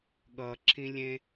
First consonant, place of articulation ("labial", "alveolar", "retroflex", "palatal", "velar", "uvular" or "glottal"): velar